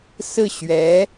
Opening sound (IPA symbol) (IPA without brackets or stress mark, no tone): s